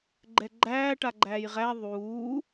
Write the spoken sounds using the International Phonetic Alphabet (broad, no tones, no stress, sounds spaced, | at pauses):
ɡ͡ǃ ɛ ɡ͡ǃ æː ʈ a ɡ͡ǃ æː j ʁ æ ðˤ uː